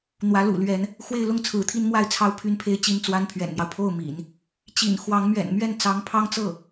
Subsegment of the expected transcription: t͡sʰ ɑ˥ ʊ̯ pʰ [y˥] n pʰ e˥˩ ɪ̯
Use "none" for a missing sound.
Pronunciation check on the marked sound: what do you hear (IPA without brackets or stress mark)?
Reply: y˥